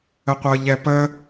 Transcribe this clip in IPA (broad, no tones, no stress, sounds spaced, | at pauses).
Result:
ə qʷ ɤ ʎ ɛ p ə